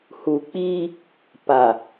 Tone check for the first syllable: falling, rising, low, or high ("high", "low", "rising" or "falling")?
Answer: low